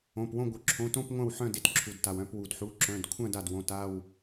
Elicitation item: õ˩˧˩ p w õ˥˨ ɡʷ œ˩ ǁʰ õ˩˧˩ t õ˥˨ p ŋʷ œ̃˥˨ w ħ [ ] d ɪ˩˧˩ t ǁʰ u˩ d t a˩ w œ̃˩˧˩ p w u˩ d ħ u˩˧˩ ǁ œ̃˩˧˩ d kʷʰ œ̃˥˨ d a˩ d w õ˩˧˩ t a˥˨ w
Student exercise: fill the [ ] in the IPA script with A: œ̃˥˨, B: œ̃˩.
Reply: A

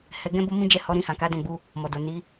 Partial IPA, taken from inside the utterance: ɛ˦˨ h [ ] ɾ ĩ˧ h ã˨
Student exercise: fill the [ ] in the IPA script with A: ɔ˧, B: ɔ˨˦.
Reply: B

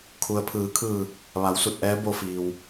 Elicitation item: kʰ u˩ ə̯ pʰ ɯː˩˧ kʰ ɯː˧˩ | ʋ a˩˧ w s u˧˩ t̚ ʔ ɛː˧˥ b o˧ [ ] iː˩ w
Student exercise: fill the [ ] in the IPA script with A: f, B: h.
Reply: A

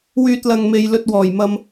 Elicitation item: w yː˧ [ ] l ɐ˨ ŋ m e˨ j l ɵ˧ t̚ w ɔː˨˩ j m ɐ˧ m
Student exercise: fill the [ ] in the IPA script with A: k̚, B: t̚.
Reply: B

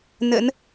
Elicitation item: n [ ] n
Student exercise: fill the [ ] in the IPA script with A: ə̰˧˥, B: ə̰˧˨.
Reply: A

